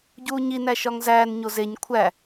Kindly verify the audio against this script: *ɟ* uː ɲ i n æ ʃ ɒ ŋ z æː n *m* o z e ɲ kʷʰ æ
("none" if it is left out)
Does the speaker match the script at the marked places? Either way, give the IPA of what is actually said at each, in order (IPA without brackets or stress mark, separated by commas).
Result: ɟ, ɲ